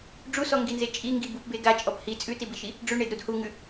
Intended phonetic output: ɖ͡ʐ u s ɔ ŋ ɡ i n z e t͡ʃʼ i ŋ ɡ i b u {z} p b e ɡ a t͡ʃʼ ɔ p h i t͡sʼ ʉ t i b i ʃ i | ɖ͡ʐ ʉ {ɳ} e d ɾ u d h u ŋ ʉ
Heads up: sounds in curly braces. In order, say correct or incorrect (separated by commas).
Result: incorrect, correct